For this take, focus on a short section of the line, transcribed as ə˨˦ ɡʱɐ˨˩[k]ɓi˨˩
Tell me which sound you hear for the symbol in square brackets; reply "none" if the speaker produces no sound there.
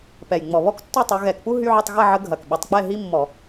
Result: k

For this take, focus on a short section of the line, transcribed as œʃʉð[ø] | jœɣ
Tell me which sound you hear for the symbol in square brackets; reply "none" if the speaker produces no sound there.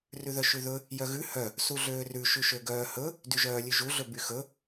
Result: ɵ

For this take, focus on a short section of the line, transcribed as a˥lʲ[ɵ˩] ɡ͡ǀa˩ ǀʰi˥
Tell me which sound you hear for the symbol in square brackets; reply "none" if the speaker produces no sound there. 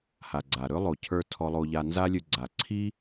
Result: ɵ˧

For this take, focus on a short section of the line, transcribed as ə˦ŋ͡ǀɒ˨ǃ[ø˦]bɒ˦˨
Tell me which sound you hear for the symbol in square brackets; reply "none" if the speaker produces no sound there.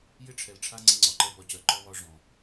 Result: ɛ˦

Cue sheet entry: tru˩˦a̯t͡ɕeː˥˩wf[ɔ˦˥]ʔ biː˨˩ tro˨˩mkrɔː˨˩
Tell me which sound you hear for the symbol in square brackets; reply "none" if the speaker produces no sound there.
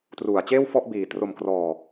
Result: ɔ˥˩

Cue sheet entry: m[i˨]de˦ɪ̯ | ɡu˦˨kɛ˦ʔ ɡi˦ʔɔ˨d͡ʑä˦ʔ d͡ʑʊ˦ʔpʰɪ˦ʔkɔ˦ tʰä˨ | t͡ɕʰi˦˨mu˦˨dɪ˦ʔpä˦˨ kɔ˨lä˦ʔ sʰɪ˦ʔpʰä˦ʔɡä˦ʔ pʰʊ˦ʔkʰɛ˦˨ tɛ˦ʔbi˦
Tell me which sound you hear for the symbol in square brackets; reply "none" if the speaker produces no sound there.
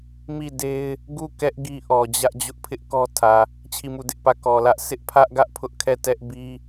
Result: i˦˨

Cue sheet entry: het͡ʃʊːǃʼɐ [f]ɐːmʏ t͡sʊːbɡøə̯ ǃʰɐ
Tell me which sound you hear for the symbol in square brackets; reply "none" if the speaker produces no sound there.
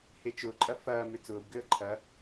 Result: f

